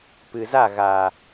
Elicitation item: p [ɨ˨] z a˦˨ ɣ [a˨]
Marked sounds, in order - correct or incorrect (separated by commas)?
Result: correct, correct